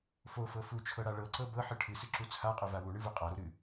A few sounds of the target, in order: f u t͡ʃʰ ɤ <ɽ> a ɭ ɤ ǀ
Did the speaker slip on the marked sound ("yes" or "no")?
no